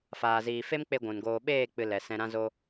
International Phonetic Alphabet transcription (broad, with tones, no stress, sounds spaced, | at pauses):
f aː˨ z iː˨ f e˦ m k͡p e˧ ɡʷ ũ˨ n ɡ oː˧ ɓ eː˦˨ k͡p ɨ˨ l ɛ˨ s ɛ̃˧ ɾ ã˦ z o˦